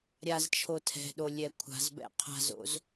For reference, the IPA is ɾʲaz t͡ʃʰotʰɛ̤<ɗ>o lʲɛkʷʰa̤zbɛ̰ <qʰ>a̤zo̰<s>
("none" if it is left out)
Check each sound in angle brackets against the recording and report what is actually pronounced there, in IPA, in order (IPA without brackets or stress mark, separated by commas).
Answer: ɗ, qʰ, z